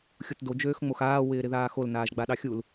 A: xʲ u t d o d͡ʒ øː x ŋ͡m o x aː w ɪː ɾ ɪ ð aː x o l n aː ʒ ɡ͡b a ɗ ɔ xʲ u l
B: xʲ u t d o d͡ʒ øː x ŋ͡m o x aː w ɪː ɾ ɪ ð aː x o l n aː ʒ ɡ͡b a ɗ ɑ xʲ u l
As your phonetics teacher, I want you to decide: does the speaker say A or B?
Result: B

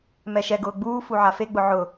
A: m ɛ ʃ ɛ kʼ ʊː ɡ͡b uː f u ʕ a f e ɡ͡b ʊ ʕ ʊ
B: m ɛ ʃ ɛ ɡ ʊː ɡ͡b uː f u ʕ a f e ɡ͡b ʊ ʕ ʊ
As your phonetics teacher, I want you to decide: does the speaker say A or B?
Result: B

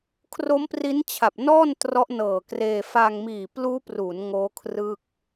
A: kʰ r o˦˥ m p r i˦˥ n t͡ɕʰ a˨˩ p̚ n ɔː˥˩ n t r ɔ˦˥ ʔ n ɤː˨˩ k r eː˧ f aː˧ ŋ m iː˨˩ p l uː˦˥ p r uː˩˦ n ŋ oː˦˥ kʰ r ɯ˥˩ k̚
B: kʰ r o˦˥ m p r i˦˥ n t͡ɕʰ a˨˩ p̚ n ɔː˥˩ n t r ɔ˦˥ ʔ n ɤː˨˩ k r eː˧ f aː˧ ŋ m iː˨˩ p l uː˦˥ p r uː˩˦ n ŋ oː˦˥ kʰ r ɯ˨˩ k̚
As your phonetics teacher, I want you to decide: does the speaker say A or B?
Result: A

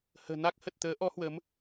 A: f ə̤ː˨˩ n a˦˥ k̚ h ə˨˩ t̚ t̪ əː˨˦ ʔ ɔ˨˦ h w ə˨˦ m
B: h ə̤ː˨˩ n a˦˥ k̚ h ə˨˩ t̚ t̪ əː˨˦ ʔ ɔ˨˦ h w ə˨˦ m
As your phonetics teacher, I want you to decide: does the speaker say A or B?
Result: B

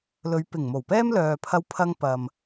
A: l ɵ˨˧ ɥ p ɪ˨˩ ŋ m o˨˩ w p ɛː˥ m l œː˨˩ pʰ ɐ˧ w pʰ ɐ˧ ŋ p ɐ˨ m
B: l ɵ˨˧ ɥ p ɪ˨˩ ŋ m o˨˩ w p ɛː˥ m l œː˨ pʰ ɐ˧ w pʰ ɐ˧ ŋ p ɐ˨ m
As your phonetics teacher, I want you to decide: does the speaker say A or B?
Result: B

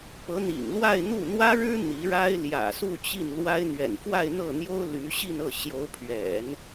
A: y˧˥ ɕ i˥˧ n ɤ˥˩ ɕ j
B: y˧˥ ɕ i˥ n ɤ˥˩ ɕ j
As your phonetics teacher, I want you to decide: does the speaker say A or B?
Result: A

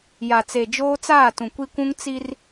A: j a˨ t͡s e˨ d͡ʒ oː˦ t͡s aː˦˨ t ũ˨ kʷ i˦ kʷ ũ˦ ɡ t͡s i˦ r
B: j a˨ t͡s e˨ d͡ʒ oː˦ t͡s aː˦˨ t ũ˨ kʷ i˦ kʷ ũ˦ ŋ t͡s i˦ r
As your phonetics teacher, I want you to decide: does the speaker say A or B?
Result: B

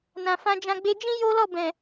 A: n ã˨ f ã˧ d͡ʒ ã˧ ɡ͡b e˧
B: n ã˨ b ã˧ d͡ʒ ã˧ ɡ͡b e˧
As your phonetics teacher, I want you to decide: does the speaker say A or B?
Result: A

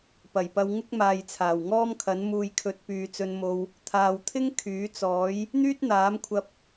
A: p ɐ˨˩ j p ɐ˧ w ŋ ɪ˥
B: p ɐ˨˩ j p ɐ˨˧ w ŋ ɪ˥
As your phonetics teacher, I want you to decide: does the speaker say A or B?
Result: A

